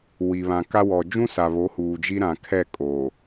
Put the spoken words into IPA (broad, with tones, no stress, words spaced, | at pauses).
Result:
wi˨βã˨ka˦ wɔ˨ d͡ʒũ˦sa˨βo˨˦ huː˨d͡ʒi˦ɾã˨ kʰɛ˦˨kʼoː˨